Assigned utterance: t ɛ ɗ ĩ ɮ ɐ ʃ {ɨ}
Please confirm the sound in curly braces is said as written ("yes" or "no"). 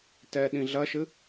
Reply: yes